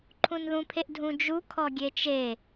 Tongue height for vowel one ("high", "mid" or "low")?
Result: high